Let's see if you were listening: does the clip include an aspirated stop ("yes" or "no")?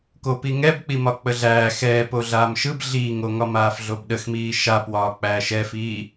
no